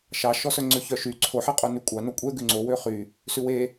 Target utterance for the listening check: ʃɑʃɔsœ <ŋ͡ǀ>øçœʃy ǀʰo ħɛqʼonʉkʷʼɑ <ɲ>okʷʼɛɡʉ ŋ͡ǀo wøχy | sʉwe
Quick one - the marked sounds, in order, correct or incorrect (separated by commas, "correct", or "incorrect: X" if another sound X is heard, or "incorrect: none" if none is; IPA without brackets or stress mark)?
correct, incorrect: n